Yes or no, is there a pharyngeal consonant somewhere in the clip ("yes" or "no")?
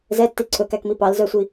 no